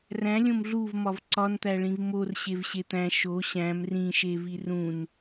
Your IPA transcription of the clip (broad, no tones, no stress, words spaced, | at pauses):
ræ̃lʲõm ɮuvmɒv ǀɒnt̪æɭĩv morɕevɕe t̪æ̃ ʃo ɕæ̃m rĩʃevi rũn